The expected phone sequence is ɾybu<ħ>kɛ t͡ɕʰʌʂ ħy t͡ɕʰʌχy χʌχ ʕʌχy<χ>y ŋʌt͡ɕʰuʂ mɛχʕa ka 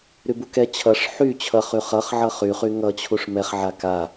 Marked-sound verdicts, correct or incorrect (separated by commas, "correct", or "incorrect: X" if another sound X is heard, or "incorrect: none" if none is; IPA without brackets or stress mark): incorrect: none, correct